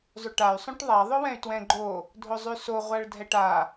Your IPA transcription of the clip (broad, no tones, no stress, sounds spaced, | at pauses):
zˤ ʉ ʈ a y̯ sˤ õ ʈ ðˤ a ðˤ ʊ w ɛ̃ y̯ t w ɛ̃ ɡ͡ǃ o | dʱ ʊ zˤ ʉ s o ʁʷ a ɭ dʱ ɛ ʈ a